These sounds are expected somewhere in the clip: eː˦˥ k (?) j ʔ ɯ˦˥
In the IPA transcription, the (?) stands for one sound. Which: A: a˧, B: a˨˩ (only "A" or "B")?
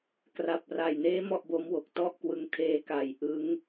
B